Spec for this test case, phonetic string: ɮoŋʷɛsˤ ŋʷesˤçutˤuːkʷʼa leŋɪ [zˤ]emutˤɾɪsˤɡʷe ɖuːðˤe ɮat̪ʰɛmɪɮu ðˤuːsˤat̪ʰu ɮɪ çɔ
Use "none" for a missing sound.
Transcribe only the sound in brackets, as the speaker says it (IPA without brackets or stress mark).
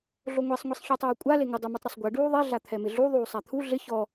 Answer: dˤ